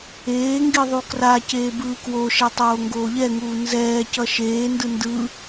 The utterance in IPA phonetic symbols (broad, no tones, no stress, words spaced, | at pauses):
eːŋɡi ðˤukraceː bɯːkwoʃɛ tˤoːŋɡoːʎɛŋuː nzɛːcʌ ʃeːndɯ ndɯ